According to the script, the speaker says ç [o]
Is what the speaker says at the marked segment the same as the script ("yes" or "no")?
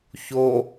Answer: yes